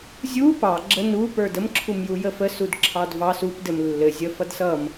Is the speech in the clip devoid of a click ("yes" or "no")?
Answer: no